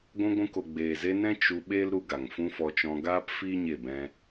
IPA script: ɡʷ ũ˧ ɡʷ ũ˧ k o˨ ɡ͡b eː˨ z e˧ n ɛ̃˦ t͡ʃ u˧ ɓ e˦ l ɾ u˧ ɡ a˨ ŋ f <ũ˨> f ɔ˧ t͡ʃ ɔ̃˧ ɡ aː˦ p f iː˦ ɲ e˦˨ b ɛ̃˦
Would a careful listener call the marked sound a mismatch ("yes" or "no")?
yes